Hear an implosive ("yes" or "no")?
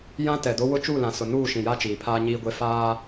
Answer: no